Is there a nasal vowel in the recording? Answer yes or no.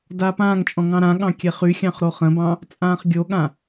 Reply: yes